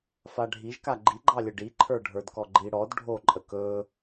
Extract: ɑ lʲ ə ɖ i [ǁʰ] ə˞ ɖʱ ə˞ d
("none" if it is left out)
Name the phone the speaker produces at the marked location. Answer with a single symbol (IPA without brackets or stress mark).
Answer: ǃʰ